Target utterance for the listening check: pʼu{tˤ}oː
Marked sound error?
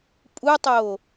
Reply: no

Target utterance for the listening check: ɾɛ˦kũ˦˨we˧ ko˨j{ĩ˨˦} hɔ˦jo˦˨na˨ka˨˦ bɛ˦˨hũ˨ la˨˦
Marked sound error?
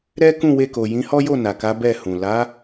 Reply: no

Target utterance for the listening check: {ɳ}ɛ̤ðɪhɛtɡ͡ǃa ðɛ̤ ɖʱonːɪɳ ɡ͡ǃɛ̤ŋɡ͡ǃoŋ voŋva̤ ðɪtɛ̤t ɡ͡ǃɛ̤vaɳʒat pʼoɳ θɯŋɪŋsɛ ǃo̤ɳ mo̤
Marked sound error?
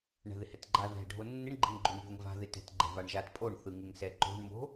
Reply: no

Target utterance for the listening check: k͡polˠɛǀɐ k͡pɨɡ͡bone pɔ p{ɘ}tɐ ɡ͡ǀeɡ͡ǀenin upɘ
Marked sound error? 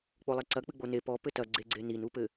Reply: no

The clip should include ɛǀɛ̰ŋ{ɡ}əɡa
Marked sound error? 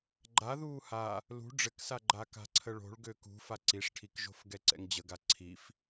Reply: yes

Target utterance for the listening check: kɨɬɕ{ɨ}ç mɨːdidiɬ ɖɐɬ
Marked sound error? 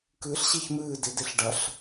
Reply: yes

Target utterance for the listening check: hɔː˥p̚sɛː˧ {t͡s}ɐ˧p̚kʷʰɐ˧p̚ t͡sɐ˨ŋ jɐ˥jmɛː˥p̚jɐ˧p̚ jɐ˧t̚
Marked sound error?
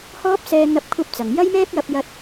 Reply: yes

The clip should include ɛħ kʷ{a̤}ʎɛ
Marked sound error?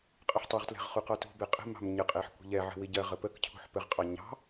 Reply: yes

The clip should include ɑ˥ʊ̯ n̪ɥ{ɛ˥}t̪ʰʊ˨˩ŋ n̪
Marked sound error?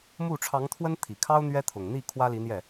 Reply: no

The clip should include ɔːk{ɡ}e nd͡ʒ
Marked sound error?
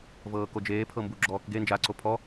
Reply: no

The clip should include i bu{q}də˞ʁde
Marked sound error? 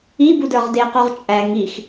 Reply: yes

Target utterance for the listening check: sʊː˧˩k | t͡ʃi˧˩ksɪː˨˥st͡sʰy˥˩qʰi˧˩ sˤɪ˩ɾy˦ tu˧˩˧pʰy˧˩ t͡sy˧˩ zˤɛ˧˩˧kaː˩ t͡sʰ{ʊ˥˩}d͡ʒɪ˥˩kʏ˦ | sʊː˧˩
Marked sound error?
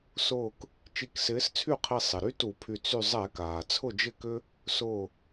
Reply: no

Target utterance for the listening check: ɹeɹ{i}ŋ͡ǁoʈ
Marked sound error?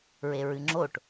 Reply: yes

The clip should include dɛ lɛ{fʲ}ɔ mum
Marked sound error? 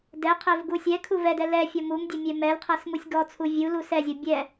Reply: no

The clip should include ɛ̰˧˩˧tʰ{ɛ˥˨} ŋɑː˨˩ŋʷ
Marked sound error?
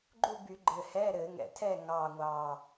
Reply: no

